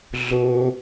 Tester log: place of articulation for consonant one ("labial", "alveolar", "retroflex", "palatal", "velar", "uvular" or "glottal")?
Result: alveolar